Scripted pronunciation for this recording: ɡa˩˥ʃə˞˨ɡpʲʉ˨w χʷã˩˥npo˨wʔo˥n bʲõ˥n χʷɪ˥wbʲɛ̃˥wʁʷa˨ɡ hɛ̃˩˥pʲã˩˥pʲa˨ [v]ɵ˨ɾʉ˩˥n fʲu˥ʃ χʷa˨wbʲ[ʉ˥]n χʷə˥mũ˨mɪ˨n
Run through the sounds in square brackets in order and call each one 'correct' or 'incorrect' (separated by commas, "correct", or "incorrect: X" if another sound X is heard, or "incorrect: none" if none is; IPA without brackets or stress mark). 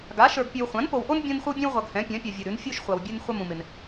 incorrect: vʲ, correct